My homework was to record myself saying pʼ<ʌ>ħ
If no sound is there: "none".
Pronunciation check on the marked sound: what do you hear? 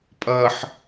ʌ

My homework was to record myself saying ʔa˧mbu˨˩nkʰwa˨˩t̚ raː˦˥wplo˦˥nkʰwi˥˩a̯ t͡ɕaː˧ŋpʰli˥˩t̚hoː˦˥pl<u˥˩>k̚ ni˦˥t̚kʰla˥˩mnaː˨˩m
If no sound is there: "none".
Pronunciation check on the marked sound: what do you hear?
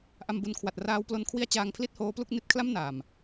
u˥˩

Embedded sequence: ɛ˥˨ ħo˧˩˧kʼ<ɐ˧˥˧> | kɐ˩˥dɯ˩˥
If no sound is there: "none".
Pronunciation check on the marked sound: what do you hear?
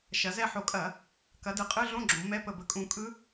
ɐ˧˩˧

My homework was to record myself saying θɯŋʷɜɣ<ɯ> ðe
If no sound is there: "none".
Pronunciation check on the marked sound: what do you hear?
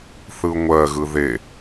ɯ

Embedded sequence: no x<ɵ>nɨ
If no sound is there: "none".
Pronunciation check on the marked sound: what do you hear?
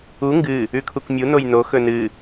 ɵ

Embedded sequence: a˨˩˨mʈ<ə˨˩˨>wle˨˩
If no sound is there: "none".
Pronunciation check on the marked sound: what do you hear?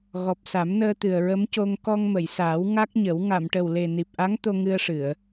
ə˨˩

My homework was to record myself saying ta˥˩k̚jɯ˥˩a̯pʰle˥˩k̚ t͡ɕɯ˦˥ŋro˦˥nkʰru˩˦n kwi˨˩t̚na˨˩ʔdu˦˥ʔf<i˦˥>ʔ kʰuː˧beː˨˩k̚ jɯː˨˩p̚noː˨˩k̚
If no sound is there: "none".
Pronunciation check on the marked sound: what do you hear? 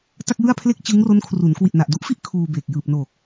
i˥˩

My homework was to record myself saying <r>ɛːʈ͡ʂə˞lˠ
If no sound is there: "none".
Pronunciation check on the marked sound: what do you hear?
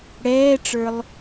ɽ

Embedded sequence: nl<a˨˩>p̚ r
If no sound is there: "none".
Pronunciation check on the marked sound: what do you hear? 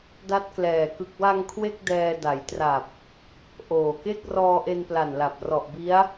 a˨˩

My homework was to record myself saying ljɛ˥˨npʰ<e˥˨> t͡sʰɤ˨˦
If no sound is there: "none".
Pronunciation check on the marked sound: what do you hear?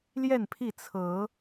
i˥˨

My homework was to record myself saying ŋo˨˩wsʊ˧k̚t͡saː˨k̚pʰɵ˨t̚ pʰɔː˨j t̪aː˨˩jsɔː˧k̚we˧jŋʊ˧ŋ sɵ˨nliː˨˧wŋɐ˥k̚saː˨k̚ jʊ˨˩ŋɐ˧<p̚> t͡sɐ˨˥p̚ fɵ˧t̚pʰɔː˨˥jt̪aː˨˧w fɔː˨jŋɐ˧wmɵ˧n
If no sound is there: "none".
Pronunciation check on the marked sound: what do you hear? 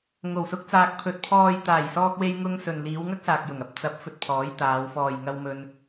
p̚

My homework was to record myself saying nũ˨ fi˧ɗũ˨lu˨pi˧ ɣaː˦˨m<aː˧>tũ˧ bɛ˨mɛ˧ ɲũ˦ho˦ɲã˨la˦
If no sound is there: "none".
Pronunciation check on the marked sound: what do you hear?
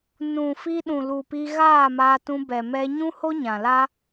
aː˧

